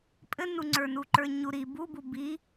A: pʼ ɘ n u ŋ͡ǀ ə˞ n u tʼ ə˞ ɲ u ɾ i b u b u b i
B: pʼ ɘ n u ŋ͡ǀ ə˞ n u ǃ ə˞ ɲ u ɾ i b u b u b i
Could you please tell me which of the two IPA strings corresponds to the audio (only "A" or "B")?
B